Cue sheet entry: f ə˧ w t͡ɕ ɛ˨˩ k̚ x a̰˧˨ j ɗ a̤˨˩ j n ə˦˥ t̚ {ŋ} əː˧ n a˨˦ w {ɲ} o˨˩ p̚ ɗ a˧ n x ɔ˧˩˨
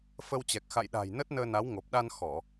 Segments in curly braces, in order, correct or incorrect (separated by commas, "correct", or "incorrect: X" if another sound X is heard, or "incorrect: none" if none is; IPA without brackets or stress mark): incorrect: n, incorrect: ŋ